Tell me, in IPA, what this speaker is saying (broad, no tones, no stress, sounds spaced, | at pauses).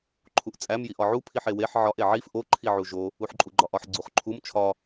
ǃʰ u ʔ t͡sʼ æ m j i ʔ ɒ ʕ u pʰ i ħ e w e ħ ʕ ɒ ʔ e ʕ i f ʔ o ǃʰ i ʕ u ʒ o | u ħ ǃʼ u ɡ͡ǃ ɒ ʔ ɒ ħ ɡ͡ǀ u χ ǃʰ u m t͡ʃʰ ɒ